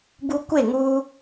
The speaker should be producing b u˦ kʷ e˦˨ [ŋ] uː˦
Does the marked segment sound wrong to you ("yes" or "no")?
no